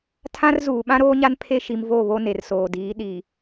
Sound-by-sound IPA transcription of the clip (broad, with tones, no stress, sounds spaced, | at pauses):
tʰ ã˦ r z uː˨ ɓ ã˦ ɾ oː˦ ɲ a˦ n pʰ e˦ ʃ i˨ m v o˦˨ β o˦ n e˨ r s oː˨ d iː˨˦ ɗ i˨